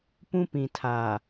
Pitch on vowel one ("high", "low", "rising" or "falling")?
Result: high